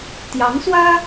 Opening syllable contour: rising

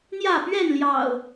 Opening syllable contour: falling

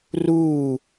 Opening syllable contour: falling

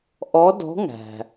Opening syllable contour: rising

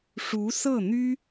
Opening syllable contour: rising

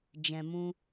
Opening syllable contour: low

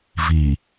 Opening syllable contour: low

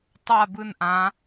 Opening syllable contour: falling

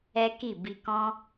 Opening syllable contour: high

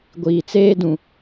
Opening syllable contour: low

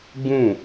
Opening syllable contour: falling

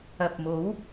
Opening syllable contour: low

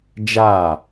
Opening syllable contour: falling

